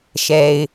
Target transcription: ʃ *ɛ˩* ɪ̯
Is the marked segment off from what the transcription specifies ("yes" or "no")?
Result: no